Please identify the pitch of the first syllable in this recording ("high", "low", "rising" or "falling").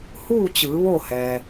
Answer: falling